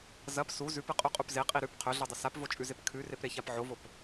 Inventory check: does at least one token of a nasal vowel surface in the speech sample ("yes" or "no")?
no